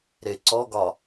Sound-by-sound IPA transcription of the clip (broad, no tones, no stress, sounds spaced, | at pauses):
ɾ e ǀ ɔ ɡ ɒ